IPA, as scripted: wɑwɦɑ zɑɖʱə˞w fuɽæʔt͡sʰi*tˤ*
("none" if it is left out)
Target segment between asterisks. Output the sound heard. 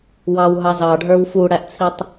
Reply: tˤ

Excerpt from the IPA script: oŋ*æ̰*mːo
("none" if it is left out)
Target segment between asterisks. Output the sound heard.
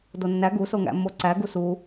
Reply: æ̰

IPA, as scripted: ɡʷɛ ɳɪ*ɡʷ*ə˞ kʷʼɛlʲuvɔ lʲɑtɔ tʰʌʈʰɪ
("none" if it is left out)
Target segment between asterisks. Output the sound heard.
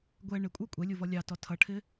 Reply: kʷʼ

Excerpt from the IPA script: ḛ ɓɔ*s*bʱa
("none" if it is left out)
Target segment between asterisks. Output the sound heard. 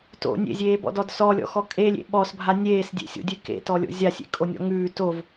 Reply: s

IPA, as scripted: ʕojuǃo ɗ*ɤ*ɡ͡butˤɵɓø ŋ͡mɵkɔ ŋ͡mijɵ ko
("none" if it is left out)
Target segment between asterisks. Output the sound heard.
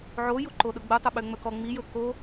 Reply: ɵ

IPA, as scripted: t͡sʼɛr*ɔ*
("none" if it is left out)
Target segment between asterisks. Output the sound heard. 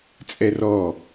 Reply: ɔ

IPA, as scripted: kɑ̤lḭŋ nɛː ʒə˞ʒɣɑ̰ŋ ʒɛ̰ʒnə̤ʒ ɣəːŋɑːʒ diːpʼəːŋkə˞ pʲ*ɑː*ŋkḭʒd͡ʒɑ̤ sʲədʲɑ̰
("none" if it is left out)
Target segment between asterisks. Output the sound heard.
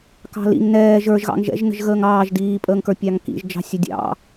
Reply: ɑ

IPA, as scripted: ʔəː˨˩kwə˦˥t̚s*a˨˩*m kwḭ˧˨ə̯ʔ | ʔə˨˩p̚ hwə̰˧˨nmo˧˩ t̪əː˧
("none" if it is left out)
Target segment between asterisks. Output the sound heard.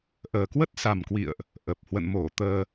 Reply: a˨˩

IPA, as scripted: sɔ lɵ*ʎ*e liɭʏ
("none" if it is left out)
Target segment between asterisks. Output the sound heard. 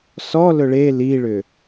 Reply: ɭ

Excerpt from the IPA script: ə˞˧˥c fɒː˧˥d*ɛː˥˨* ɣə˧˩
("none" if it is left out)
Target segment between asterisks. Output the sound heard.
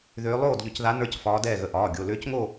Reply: ɛː˥˨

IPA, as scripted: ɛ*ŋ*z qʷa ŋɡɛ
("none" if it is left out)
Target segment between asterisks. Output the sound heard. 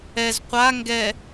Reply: none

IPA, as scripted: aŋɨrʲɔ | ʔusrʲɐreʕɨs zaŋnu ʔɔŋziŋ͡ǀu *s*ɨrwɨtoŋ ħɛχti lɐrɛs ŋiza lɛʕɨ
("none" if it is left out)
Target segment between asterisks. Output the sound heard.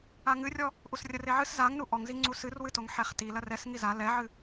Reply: s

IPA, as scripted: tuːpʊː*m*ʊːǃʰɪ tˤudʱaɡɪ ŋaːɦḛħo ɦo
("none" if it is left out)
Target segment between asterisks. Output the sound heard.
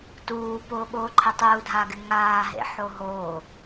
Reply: ɓ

